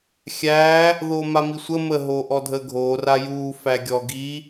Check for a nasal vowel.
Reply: absent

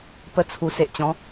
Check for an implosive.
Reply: absent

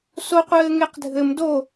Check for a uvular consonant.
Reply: present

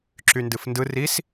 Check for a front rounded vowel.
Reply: present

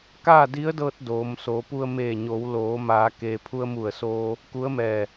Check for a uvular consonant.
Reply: absent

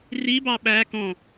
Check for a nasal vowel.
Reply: present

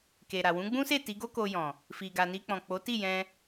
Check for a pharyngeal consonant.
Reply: absent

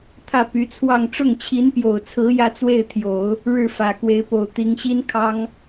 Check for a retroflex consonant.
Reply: present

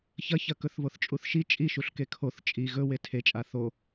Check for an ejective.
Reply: present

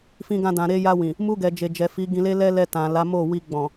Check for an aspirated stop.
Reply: absent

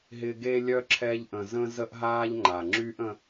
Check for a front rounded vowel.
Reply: present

